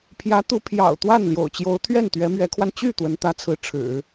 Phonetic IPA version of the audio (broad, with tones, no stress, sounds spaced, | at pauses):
pʰ j ä˧˥ t̪ u˧˥ pʰ j ɑ̰˨˩ ʊ̯ t̪ w a˥˩ n l j o̰˨˩ ʊ̯ t͡ɕ j o˧˥ ʊ̯ t̪ʰ ɥ ɛ˥˩ n t̪ ɥ ɛ˧˥ m ɥ ɛ˧˥ kʰ w a˧ n t͡ɕ y˥˩ t̪ w ə˧˥ n t̪ ä˧˥ t͡sʰ ɹ̩˧˥ ʈ͡ʂʰ ɻ̩˨˩˦